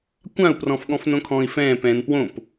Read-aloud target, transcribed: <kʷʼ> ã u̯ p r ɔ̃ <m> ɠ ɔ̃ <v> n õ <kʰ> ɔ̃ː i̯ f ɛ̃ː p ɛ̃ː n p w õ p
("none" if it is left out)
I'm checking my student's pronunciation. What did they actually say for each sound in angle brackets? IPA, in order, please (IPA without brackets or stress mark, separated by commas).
kʷ, f, f, kʰ